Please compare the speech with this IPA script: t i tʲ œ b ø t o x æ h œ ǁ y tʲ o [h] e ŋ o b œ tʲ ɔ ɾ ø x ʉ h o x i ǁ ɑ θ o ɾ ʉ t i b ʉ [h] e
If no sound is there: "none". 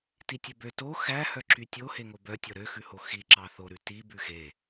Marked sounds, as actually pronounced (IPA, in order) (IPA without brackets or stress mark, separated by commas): h, x